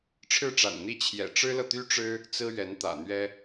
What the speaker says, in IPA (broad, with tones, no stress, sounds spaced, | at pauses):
ʈ͡ʂʰ ɻ̩˥˩ ʈ͡ʂ a̰˨˩ n n̪ i˥˩ t͡ɕʰ j ɛ̰˨˩ ʈ͡ʂ ɻ̩˥ l ɤ˨ t̪ y˥ ʈ͡ʂ ɻ̩˥ | t͡s ɹ̩˥ ɥ ɛ˧˥ n t̪ ä̰˨˩ n̪ ɥ ɛ˥